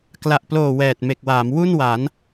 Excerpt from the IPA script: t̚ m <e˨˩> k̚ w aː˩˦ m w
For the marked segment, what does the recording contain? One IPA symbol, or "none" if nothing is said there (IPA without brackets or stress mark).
e˨˩